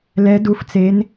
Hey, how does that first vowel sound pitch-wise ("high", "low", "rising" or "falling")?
rising